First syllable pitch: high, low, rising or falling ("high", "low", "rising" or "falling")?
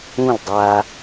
falling